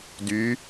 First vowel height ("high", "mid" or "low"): high